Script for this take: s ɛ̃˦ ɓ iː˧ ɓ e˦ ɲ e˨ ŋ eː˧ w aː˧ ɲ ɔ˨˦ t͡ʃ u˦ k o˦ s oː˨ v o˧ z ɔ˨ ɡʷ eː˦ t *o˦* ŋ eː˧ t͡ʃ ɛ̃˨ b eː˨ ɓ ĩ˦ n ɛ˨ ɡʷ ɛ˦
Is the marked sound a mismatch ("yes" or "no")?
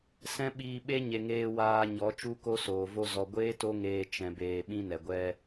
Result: no